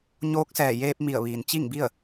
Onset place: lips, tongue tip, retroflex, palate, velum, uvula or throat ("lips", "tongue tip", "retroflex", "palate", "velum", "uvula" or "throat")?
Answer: palate